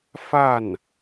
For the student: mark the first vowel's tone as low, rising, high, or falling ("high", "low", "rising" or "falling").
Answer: falling